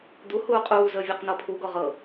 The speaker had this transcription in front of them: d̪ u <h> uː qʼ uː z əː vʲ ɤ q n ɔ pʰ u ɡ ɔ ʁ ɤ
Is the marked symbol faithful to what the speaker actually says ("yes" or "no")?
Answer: yes